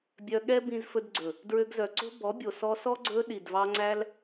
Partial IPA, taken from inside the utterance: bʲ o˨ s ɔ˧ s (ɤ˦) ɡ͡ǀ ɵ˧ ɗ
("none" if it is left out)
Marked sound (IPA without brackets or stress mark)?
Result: ɔ˦